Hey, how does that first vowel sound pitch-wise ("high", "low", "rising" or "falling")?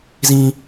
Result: high